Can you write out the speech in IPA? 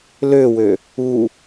l ø w ø | u

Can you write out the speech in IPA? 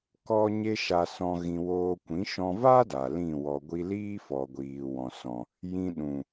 k ɔ˦ ɲ e˦ ʃ a˧ s ɔ̃˧ ɣ ĩ˧ w oː˧ kʷ ĩ˨˦ ʃ ɔ̃˧ v a˦ d a˨ l ĩ˦˨ w ɔ˧ ɡʷ i˦ l iː˦ f ɔ˨ ɡʷ iː˨ w ɔ̃˨ s ɔ̃˨ | j ĩ˧ ɗ ũ˨

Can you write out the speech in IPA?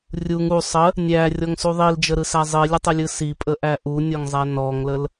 rʲ u ŋ u sˤ ə | nʲ æ rʲ ɔ ŋ s u ðˤ i l d͡ʒ ə ɾ ɯ s æ zˤ i lʲ ə tˤ ə lʲ ɯ s i pʼ ə ʔ æ ʔ u nʲ ɔ ŋ zˤ æ n ɔ ŋ l ə l

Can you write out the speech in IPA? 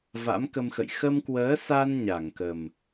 v a̰˧˥ m k ə˧ m x ə̰˧˨ j x ə˧ m k w əː˨˦ s a˧ n ɲ a˧˩ ŋ k ə˨˩ m

